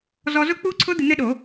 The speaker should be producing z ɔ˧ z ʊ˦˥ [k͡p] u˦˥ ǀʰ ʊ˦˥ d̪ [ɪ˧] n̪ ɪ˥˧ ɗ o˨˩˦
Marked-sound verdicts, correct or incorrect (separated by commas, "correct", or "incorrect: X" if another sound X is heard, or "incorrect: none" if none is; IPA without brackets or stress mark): correct, correct